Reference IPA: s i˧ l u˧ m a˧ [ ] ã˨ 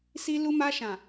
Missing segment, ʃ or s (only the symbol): ʃ